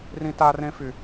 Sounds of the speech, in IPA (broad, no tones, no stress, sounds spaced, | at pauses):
r ĩ t a r ẽ f y